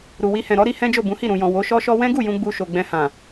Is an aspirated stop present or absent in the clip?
absent